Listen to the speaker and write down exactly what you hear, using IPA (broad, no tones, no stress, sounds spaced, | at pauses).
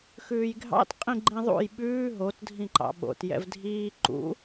x ʉː j ɡʱ ɑ̰ t qʼ ĩ ɡ͡ǃ ĩ ðˤ ṵ j ɓ ʉː ɦ o t dʱ ĩ ǃ ɑ̰ ɓ o̰ t j ɛ̰ v dʱ iː ǃ ṵ